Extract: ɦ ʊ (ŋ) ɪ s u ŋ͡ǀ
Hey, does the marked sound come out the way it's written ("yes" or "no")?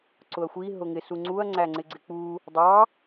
yes